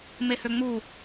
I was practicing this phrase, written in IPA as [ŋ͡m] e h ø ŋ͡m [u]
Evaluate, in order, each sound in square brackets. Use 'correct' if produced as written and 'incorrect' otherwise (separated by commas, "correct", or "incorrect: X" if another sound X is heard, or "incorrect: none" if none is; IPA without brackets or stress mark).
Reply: incorrect: m, correct